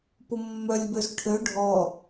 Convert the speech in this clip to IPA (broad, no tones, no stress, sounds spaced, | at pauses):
p ʊ mː œ lʲ b ø z ʈʰ ø ɖʱ ɔ